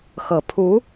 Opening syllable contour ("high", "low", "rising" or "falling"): low